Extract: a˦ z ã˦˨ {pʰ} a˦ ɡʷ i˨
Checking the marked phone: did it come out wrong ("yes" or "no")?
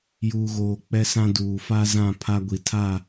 no